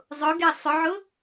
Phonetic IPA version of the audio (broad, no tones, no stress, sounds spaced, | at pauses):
zˤ ʊ ɡ e sˤ ʊ ʕ ʊ